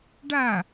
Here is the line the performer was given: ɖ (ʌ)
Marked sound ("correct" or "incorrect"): incorrect